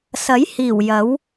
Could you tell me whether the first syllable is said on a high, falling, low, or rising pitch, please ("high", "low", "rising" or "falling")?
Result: rising